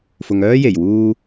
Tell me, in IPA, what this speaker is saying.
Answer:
fʊ˨ŋœː˥je˨˩j wuː˧

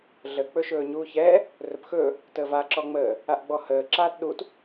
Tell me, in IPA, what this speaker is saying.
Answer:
ɮə k͡pɵʃɵːɲuːçɛː | rɵpxɵː | təːva ǁɔŋ͡məː | aʔɡ͡bɔhəː ǁaːtɗut

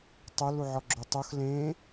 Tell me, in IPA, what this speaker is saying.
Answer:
tˤœl uʕɔɡ͡ǁotˤox lẽ

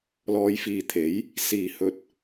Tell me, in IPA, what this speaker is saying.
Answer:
lɔː˨˧jfiː˨t̪ʰe˨˥j | siː˨˩hɵ˨t̚

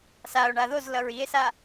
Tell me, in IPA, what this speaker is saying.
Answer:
sao̯ɳa ðozlʌɹ ie̯sa

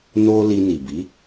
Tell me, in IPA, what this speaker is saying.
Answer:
no˦ li˧ni˨bi˨˦

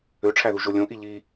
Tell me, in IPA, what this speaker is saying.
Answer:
øʈ͡ʂʰæðuʒo lʲõʔi ʎi

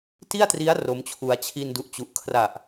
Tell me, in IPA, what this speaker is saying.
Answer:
ti˥˩a̯tri˦˥a̯ ro˦˥mt͡ɕʰu˧a̯ t͡ɕʰi˧ndu˨˩ʔt͡ɕu˨˩ʔ kʰra˨˩ʔ

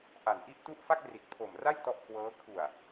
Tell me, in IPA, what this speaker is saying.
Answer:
ʔa˨˩nʔi˥˩ʔtu˥˩ʔ fa˥˩k̚ri˨˩t̚ pʰo˨˩m ra˥˩j tɔ˥˩ʔkʰwɤː˦˥ kʰu˨˩a̯

